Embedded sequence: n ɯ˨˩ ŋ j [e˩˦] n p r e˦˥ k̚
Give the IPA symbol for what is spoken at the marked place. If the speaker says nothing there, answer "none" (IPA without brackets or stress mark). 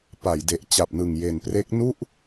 e˨˩